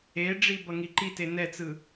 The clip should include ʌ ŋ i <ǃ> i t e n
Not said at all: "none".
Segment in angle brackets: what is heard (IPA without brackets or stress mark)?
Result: ǃ